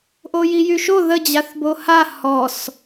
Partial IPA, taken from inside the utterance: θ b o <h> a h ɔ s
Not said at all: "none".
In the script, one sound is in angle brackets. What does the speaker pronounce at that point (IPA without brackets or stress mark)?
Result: h